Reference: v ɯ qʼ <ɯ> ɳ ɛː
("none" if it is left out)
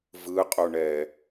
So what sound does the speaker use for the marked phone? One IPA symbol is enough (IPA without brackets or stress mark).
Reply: u